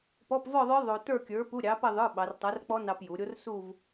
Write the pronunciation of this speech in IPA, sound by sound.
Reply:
p ɔ˧˥˧ p v ɔ˥˧ ðˤ ə˞˦˥ ðˤ o˧ t ə˞˥˧ kʲ ə˞˨˥ p u˧˥˧ ɾʲ ɑ˨˥ p ɐ˥˧ ðˤ ə˞˧˥˧ ɓ ɑ˩˧ r tˤ ɐ˨˥ r k͡p ɔ˦˥ n ɑ˧ p j u˩˧ ɾʲ o˦˥ r s u˥˧ v

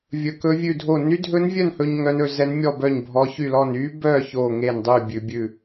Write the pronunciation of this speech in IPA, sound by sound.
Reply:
vʲ ɵ˧ k ɵ˦˥ vʲ ʉ˥˧ dʱ o˥˧ n y˦˥ dʱ ɵ˦˥ n vʲ œ˥˧ n h ɵ˧ ɲ ŋ œ˦˥ n ɵ˧ z ɛ˦˥ n mʲ ɔ˥˧ b œ˥˧ ɲ bʱ ɔ˦˥ ç y˥˧ l ɔ˥˧ n y˦˥ b œ˥˧ ç o˥˧ ŋ e˥˧ n dˤ y˥˧ bʲ ʉ˧ bʲ ʉ˥˧

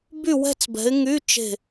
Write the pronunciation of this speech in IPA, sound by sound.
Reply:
b y˥˧ w ɛ̤˥˧ t͡s b ɛ̤˨˦ ɪ̯ ŋ y˧˥˧ t͡ʃ e̤˥˧

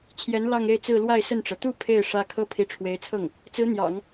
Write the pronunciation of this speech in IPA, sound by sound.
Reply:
t͡ɕʰ j ɛ˧˥ n l ɑ˥˧ ŋ e˥˧ ɪ̯ t͡s ɹ̩˥˧ l w a˥˧ ɪ̯ s ə˥˩ n ʈ͡ʂ ɤ˩ t̪ u˥˧ pʰ e˥˩ ɪ̯ ʂ ä˥ kʰ ɤ˥ pʰ i˧˥ ʈ͡ʂʰ w e˧˥ ɪ̯ t͡sʰ ɤ˥˩ ŋ | t͡s ɹ̩˧˥ n̪ j ɑ̰˨˩˦ ŋ

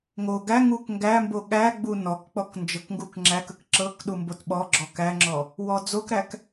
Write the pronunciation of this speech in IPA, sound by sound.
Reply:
ŋ o ɡ æ ŋ u k ŋ ɡ æ m b o ɠ æ ɡ͡b u n ɔ k k͡p ɔ k n d͡ʒ ɤ k ŋ ɡ u k ŋ͡ǁ æ k ə k ǁ ɤ k ɗ u m b o t ɓ ɔ ɡ͡ǁ ɔ k æ ŋ͡ǁ ɔ | w ɔ d͡z o k ɾ æ k

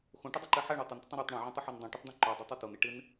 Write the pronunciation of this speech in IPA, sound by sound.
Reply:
x õ ʈ ʊ dˤ ʊ ǃ e ħ ɛ ɳ o tˤ ʊ n t ɪ tˤ õ ɾ ɛ tˤ ɳ õ ʕ õ tˤ ʊ ħ o n dˤ õ ʈ ʊ tˤ d̪ ɛ̃ ǃ o dˤ ʊ tˤ u t o n e ʈ ɪ n

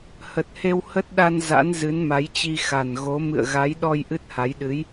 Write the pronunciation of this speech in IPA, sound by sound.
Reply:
h ə˨˩ t̚ h e˧ w h ə˦˥ t̚ ɗ a˧ n z a̰˧˥ n z ɨ˨˦ n m a˨˦ j t͡ɕ i˧ x a˨˩ n ɣ o˨˦ m ɨ̰˧˨ ə̯ ɣ a˨˦ j ɗ ɔ˧ j ʔ ɨ˦˥ t̚ h a˨˦ j ɗ ɨ˨˦ j

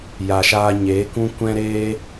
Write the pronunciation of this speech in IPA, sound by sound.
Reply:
j a˨ ʃ aː˧ ɲ eː˨˦ k ũ˦ kʷ ɛ̃˦ ɾ eː˦

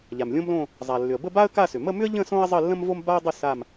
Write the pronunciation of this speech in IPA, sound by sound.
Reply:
ʎ a˩ m lʲ õ˥ m l õ˥˧ | zˤ a˩ lː ʏ˩ ə̯ b ə˥˧ b a˥ ə̯ k a˥˧ s ʏ˩ m ə˥˧ m ʏ˥ ə̯ ʎ ə̃˥˧ s õ˥ ə̯ zˤ ə˥˧ lː ə̃˥ m v o˥ m b a˥ ə̯ dˤ ʏ˥˧ s a˥˧ m

